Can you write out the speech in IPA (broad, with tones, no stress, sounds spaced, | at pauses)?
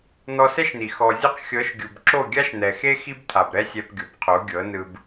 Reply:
n̪ ɔ˧ s ɛ˦ ʃ n̪ i˨ x ɔ˨ zʲ u˧ q xʲ ɤ˨˦ ʃ ɡʲ u˨ b ǁ o˦˨ ɡʲ a˦ ʃ n̪ ɛ˨ x e˦ x i˦ b t̪ʰ a˨ b ɾ ɛ˦ sʲ ɛ˧ p ɡʲ o˨ b qʰ o˨˦ ɡʲ ɤ˨˦ n ɯ˧ b